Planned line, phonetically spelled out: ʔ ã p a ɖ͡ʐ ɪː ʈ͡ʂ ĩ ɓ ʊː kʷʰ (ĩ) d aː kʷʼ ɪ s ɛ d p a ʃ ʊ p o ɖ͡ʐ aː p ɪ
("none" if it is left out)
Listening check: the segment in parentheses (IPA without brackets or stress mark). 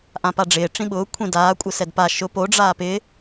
ĩ